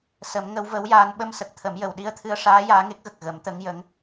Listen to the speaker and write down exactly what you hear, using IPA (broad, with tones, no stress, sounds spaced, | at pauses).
s ə˨˩˦ m ŋ ə˧˥ w v ə˧˥ w j aː˧ n ɓ ə˧ m s ə˨˩ k̚ t̪ʰ ə˨˩˦ m j ə˨˩ w ɗ i˧ ə̯ t̪ʰ ɨ˧ ə̯ ʂ aː˧˥ j aː˧˥ ŋ e˦˥ k̚ ɣ ə˨˩ k̚ ɣ ə˨˩˦ m t̪ ə˧˥ ŋ j ə˧˥ ŋ